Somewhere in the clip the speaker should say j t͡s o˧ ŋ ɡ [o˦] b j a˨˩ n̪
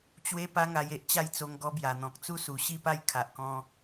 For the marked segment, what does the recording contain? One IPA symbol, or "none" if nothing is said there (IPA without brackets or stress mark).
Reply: ɔ˦